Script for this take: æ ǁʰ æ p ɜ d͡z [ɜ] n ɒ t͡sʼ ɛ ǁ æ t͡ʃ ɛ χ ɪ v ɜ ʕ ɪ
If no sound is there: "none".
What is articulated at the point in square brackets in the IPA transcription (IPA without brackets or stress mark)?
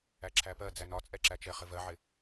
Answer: æ